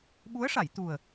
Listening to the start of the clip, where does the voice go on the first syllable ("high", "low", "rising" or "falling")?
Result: rising